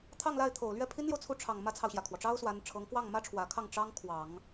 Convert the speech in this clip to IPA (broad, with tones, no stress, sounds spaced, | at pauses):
t̪ʰ ɑ˥˧ ŋ l a˥˩ ɪ̯ t̪ʰ o˨˩ ʊ̯ l ɥ ɛ˥˩ pʰ i˥ n l j o˨ ʊ̯ t͡sʰ u˥˩ ʈ͡ʂʰ ɑ˨˩ ŋ m ä˥ t͡sʰ ɑ˨ ʊ̯ ɕ j ä˩ kʰ w ɔ˩ ʈ͡ʂ ɑ˥ ʊ̯ s w a˧˥ n ʈ͡ʂʰ ɤ˧˥ ŋ k w ɑ˥˩ ŋ m ä˥ ʈ͡ʂʰ w ä˨˩ kʰ ɑ˥˩ ŋ ʈ͡ʂ ɑ˥ ŋ kʰ w ɑ˨˩˦ ŋ